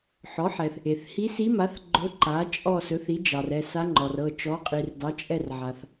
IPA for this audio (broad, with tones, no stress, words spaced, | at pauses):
ħɔ˩˥ħɛ˩θ | e˩θhi˧˥si˧˥ma˩˥θ ɡ͡ǃɵ˧˥ǃa˩˥t͡ʃʼɔ˦˨ sɵ˩˥θi˩˥d͡ʒɑ˩r ɛ˦˨ sa˧˥ŋ͡ǃɔ˩rɤ˦˨ t͡ʃɔ˩˥qʼi˩r dɑ˩˥t͡ʃʼɛ˦˨r ʕa˩θ